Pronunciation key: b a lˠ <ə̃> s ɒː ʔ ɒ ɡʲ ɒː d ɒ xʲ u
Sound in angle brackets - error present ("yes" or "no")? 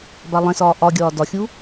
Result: yes